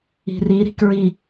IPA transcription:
i̤ r i ɾ i̤ k ɹ i

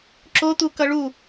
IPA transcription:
ǁ o t̪ u k ʌ ɭ u

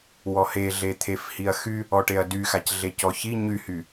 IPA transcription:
w ɔ h e ɮ e t̪ʰ e f h i ɐ̯ x y | ɔ ʈ e ɐ̯ d y x a c ɮ e c ɔ ç i ɲ y h y

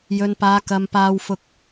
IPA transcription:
j ɵ˨ n p aː˨˧ k ɐ˨ m p aː˧ w f ʊ˧ k̚

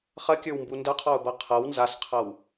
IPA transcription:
χ ɐ kʲ ə˞ w m b u n d ɐ qʰ ɔ ʊ̯ b ɤ qʰ ɤ w n z a s qʰ ɤ w

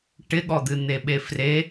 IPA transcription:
ʈ ɪ ɠ ɔ d̪ ɨ n̪ e ɓ e f r e

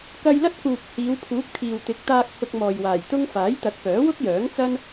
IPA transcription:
k ɐ˧ j l ɐ˥ t̚ k uː˨ k̚ h iː˨˧ w pʰ uː˨˥ k̚ t̪ʰ iː˨ w t̪ ɪ˨˥ k̚ t̪ aː˧ k̚ h ʊ˧ k̚ m ɔː˨ j w aː˨˩ j t̪ ʊ˥ ŋ f aː˨˥ j t̪ ɐ˨˥ k̚ p œː˨˥ w ʊ˥ k̚ j œː˨˥ ŋ t͡s ɐ˥ n

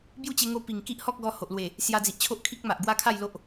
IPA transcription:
b j u˥˧ t͡ɕ e˧ ŋ o˧ p i˨˩ ŋ k i˦ ʔ h ɔ˦ k̚ ɡ ɔ˧ h o˨ ʔ l w e˨˩ | s j a˧ d͡z i˨ ʔ t͡ɕʰ o˦ ʔ kʰ i˦ k̚ m a˨ ʔ ɡ w a˦ kʰ a˥˧ j l o˦ ʔ

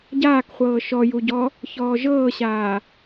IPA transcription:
ɟ aː k χʷ ɤː ʃ ɔ j u ɟ ɔ | ç ɔː ʒ ɤː ɕ aː

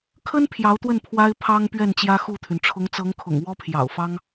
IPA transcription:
kʰ ə˥ n pʰ j ɑ˧˥ ʊ̯ t̪ w ə˥˩ n pʰ w a˥ ɪ̯ pʰ ɑ˥ ŋ p ɥ ɛ˥˩ n t͡ɕ j ä˥ x u˥˩ t̪ʰ y˩ n ʈ͡ʂʰ ʊ˧˥ ŋ t͡s ɤ˧˥ ŋ kʰ ʊ̰˨˩ ŋ w ɔ˥ pʰ j ɑ̰˨˩ ʊ̯ f ɑ˥ ŋ

